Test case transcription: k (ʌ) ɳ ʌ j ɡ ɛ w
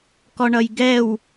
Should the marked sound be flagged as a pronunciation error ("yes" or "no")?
yes